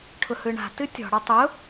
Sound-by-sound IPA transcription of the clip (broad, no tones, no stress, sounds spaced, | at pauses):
ʈʰ ʊ h ɯ ɳ a̤ t ɨ tʲ ɔ̤ ɽ ɔ tˤ ʊ